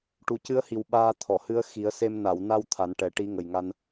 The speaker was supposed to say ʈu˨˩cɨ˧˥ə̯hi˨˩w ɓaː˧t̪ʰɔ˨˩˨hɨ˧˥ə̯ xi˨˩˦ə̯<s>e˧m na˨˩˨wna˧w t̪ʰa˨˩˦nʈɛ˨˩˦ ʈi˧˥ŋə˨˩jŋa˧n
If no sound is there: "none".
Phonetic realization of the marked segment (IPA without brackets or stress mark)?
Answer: s